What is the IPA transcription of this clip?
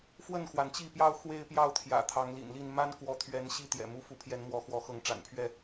f w ə˥˨ n x w a˩ n t͡ɕ i˥˨ p j ɑ˥˨ ʊ̯ x w e˦ ɪ̯ p j ɑ˥˨ ʊ̯ t̪ʰ j ä̰˨˩ t̪ʰ ɑ˨˦ ŋ l ḭ˨˩ n l i˥˨ n m a˦ n k w ɔ˨˦ t̪ʰ ɥ ɛ˨˦ n ɕ i˦ t̪ j ɛ̰˨˩ m u˥˨ f u˨˦ pʰ j ɛ˨˦ n m w ɔ˨˦ x w ɔ˨˦ x ɤ˨˦ ŋ ʈ͡ʂ a̰˨˩ n pʰ ɥ ɛ˥˨

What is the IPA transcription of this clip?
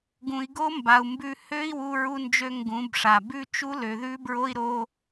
ɡ ũ˨ i̯ ɡ o˦ m b a˨ u̯ m b ʉ˧ h ø˦ i̯ w u˧ ɹ u˧ n d͡ʒ ø˧ ŋ ɡ ũ˨˦ b ʂ a˨ b ʉ˦ t͡ʃ u˦ l ø˨ ð ʉ˦ b ɹ o˦ i̯ ɾ o˦

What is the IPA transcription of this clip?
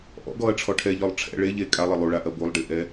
ʔ ɔ̰ ɡ ɔ ɐ̯ ʈ͡ʂʰ ɔ ʈʰ ɛ ʎ ɔ lˠ ʈ͡ʂʰ ɛ̰ ɭ e ʎ e kʼ a lˠ ɘ lˠ u ɭ a ʔ ɐ b u lˠ ɖ i ʔ ɛ

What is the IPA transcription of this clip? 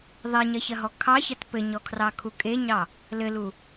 ðˤ e ɲ ɐ ç ɐ ɦ ɔ kʰ ɑ ç ɐ t p ɘ ɲ ɔ kʰ r ɑ kʰ u kʼ e ɲ ɑ | l ɘ l u

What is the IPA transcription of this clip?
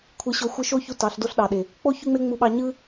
kʷʰ ɯ˧ ɕ o˧ xʷ ɯ˧ ʃ o˦ ç u˧ t ɑ˨˦ ɬ d o˦ ɬ ɗ ɑ˨ ɗ e˨ | k͡p o˦ ç y˦ ŋ͡m e˦ ŋ͡m u˧ ɓ ɑ˧ ɲ ɯ˦

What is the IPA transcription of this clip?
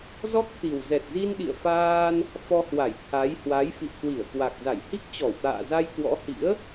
z ɔ˦˥ k̚ t̪ i˨˩ w z ɛ˨˩ t̚ z i˧ n ɗ ḭ˧˨ ə̯ f aː˧ n | f ɔ˧ h w a˧˩ j t̪ʰ a˨˦ j h w a˨˦ j f ḭ˧˨ ə̯ k w i˧˩ ə̯ k w a˨˩ k̚ z a˧˩ j h i˦˥ k̚ t͡ɕ ɔ˧˩ w t̪ a̰ː˧˨ z a˧ j k w ɔ̰˧˥ h ḭ˧˥ ə̯

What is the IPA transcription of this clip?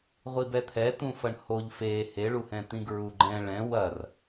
ʁʷ i b ɛ t̪ʰ ɛ t̪ ũ f ɐ ɳ h o ʎ f e h e ɭ u h ɛ̃ t̪ ĩ ɡ ɹ u ɡ͡ǃ ɛ̃ ɭ ɛ̃ w ɐ r

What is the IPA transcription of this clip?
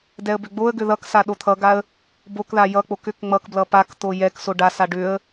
d ɛ ə̯ b ʏ ɡ͡b o ə̯ ɡ ʏ ð ʌ k s a ɗ o t̪ʰ ʌ ɡ a ə̯ | b o k ð a j ʌ k͡p o k ʏ k ŋ͡m ʌ k b l ʌ p a k t̪ o j ɛ k s o ɖ a s a ɖ ʏ ə̯

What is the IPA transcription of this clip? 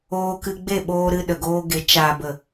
oː˧ k ɨ˧ ɡ͡b e˦˨ ɓ oː˧ ɾ ɨ˧ ɗ ə˨ ɡ oː˧ ɡ e˨˦ t͡ʃ a˨ b ə˨

